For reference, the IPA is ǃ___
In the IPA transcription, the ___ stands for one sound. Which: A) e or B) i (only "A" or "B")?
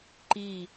B